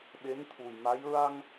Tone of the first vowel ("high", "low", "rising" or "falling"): rising